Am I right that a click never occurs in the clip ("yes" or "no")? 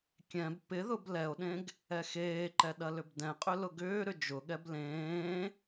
no